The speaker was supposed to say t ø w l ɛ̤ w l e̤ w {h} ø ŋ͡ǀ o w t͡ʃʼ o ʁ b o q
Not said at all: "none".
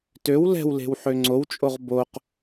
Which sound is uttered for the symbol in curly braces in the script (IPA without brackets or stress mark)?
ħ